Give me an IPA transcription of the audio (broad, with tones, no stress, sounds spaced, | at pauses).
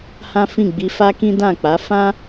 h ã˦ f ĩ˦˨ ɡ͡b i˧ f a˦ k ĩ˦ d ã˦˨ k͡p a˨˦ f ã˦